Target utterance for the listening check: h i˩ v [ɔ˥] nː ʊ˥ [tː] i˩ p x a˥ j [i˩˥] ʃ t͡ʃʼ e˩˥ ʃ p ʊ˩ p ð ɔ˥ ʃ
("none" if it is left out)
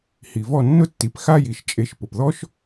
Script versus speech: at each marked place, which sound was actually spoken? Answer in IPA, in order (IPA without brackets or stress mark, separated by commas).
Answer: ɔ˥˩, tː, i˩